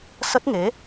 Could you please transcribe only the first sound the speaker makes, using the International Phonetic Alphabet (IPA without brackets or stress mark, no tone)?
s